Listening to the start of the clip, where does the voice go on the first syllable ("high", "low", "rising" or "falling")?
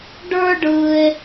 high